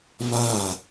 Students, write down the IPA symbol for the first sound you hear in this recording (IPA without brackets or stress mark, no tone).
β